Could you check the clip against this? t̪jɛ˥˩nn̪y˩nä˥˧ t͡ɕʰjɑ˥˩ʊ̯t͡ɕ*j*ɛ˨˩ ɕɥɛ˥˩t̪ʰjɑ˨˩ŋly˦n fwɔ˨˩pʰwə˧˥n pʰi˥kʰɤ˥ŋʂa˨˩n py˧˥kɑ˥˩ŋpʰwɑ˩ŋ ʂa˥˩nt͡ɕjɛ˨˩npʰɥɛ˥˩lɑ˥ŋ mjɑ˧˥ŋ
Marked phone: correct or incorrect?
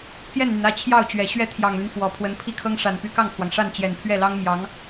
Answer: incorrect